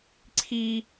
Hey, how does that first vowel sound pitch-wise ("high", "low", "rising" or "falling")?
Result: high